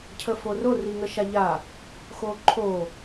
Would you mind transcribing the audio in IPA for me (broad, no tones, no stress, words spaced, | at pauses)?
cʰəforo riŋəʃaʎa | xoǃʰo